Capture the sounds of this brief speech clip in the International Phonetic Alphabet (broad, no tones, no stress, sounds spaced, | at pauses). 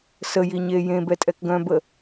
s ə j i ɲ e j ẽ b ɛ tʼ ɛ k ɡ œ̃ b ə